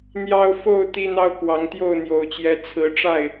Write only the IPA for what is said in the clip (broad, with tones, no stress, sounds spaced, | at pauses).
n̪ j ɑ˦ ʊ̯ f o˥˨ ʊ̯ t̪ i˦ n̪ ɑ˦ ʊ̯ k w ɑ˨˦ ŋ t̪ j o˥˨ ʊ̯ n̪ j o˨˩ ʊ̯ t͡ɕ j ɛ˨˦ t͡sʰ ɹ̩˨˦ ʈ͡ʂ a˥˨ ɪ̯